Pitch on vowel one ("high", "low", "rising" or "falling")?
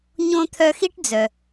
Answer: high